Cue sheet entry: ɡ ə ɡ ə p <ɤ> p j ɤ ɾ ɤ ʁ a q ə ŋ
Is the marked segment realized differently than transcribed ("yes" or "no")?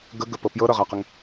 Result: no